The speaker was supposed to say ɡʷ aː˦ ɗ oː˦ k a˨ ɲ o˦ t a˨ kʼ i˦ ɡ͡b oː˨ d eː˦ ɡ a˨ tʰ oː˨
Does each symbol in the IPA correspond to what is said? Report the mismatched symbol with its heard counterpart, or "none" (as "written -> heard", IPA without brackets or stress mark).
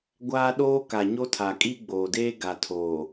t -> tʰ